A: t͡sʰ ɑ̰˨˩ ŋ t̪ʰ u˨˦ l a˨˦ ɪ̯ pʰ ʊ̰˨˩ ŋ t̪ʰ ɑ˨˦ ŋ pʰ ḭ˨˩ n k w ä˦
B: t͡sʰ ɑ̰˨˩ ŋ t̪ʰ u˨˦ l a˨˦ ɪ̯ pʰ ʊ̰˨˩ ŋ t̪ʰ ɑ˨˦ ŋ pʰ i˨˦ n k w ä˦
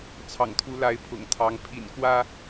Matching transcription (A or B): A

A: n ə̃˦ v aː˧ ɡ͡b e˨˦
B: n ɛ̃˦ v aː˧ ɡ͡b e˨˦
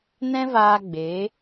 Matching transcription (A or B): B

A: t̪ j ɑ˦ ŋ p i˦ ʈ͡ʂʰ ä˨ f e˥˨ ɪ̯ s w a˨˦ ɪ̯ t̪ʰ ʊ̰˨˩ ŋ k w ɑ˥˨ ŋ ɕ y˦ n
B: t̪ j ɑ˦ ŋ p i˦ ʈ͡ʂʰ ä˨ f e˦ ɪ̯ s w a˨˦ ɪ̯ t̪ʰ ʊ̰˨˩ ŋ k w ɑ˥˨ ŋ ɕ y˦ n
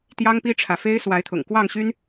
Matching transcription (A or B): B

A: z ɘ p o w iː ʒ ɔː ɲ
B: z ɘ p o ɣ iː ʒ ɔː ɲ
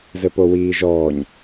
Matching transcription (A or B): A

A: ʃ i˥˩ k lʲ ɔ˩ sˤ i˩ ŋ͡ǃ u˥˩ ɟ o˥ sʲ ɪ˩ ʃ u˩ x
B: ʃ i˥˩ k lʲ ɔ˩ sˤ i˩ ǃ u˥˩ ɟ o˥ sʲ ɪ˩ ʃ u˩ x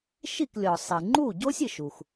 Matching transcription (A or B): A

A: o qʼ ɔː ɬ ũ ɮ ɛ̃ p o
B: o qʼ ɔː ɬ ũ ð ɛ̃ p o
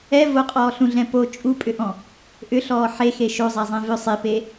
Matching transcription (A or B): A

